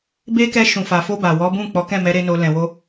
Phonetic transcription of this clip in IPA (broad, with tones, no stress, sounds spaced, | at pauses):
b e˧ k ɛ˧ ʃ ũ˨ f a˨ f o˧ b a˨ w ɔ˨˦ b ũ˦˨ k͡p ɔ˨˦ k ɛ̃˦˨ m ɛ˨˦ ɾ e˦ n o˧ l ɛ̃˨ w o˧